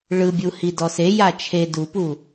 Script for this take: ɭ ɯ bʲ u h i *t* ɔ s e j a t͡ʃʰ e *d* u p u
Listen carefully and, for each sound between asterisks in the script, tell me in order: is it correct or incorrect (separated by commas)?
incorrect, correct